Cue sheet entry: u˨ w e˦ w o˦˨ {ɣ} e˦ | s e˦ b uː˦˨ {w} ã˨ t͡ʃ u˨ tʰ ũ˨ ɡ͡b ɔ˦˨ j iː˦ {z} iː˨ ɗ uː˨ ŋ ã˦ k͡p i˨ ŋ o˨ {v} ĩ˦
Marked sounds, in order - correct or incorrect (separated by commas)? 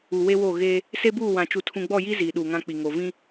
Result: correct, correct, correct, correct